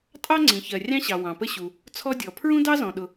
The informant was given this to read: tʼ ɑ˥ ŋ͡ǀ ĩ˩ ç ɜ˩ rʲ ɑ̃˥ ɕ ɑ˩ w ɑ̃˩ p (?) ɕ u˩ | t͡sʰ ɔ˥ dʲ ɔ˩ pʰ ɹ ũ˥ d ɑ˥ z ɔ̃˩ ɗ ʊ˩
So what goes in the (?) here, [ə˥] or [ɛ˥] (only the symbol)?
ə˥